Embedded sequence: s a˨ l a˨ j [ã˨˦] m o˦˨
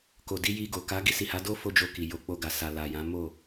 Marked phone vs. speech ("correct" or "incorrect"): correct